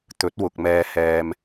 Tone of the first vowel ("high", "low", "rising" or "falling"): rising